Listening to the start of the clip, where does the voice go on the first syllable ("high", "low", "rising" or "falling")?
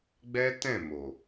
high